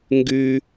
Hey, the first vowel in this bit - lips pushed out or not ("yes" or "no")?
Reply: yes